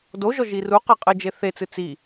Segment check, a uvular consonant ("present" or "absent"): present